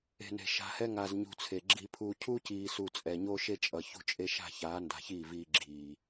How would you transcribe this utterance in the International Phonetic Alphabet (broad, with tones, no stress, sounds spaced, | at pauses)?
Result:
e̤˨ n e̤˨ ʃ a̤˨ h ɛ˦ ŋ a˨ z ɲ ṳ˨ t͡sʰ e˨ ɡ͡ǁ i˦ pʰ uː˦ cʰ u˦ c iː˨ s u˨ t͡sʼ ɛ˨ ɲ o˦ ʃ e˦ t͡ʃʼ ʌ˨ ç ṳ˦ t͡ʃʼ e˦ ʃ a̤˦˨ ç aː˨˦ n d a̤˨ ç iː˦˨ v iː˦ ɡ͡ǁ iː˨